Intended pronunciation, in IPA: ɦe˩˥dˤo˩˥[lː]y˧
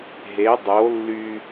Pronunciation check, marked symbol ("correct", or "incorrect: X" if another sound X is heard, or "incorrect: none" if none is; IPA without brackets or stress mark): correct